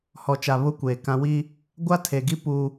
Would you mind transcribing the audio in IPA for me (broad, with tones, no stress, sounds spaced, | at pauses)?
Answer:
h ɔ˨ t͡ʃ a˨ β ʊ˦ kʷ eː˨ k ã˦ w i˦ | ɡʷ a˦ tʰ e˨ ɡ i˦ p uː˦